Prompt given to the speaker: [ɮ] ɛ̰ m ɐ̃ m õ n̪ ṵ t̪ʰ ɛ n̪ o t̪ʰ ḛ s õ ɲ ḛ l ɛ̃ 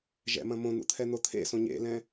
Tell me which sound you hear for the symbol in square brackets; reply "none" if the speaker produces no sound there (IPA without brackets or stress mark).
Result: ʒ